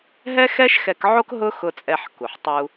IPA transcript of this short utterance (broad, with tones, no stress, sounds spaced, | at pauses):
ɦ ɛ˥ x ɛ˥ ʃ x ɛ˧ k ʕ o˥ k ɦ ʊ˥ x ʊ˧ t͡sʼ ɛ˧ ħ k u˩ ħ tˤ u˧